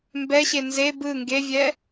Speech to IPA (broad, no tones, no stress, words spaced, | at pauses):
mbɛɕe nze bɯ ŋɡevʲɛ